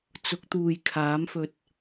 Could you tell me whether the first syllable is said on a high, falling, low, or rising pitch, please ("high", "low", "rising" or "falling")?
rising